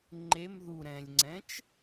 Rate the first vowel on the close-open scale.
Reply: mid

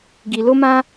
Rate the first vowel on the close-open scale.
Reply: close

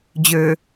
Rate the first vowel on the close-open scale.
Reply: mid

